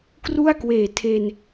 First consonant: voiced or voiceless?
voiceless